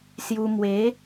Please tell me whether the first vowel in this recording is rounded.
yes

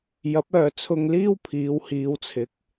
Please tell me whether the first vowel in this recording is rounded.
no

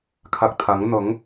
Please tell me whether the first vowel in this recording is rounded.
no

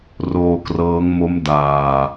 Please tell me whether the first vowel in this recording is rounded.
yes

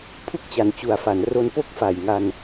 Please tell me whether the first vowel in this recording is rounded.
yes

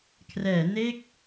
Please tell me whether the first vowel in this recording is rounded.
no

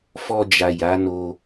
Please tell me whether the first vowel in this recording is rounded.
yes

